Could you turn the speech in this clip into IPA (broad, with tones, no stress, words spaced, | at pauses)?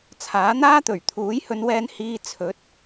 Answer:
t͡sʰaː˨˥n̪aː˥t̪ɵ˨˩ɥ t̪ʰuː˨˥jhɵ˨˧nwɛː˧nhiː˧ t͡sʰɵ˨˥t̚